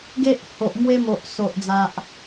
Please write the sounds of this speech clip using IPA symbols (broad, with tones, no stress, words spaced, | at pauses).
ɡe˦ʔ ho˨ʔmwe˦mo˨ʔ so˨ʔd͡za˨ʔ